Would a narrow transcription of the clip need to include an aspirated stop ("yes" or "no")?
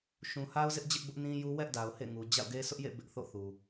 no